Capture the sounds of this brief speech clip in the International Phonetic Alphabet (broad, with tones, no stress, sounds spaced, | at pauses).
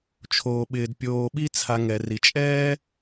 t͡ʃʰ oː˩ ɓ ɪː˩ d pʲ oː˨ ɓ i˦ t͡sʰ a˨ ŋ ɛ˩ r i˩ t͡ʃʼ ɛː˥